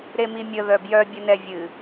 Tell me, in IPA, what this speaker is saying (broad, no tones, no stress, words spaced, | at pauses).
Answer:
ɾemimʲə ðœbjœ bʲənɛvʲɨ